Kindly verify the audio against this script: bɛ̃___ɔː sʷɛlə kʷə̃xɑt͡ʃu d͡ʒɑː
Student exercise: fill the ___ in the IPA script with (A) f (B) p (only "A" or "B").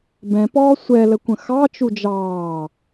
B